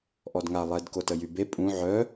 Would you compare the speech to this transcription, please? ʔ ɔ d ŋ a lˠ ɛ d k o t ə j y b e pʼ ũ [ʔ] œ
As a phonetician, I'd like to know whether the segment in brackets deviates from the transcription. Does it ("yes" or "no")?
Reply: yes